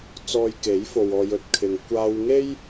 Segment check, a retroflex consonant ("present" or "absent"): absent